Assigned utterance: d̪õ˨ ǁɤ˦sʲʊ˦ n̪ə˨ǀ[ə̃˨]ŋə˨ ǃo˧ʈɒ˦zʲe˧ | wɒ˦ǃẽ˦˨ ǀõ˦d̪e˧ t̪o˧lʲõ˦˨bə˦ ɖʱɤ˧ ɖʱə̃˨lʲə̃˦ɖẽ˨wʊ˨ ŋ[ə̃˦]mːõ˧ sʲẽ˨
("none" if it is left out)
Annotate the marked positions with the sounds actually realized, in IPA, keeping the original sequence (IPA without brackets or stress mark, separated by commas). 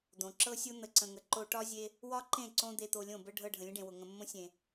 ə̃˨, ə̃˨